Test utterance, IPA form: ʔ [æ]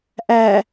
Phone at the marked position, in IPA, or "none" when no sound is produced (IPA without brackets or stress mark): æ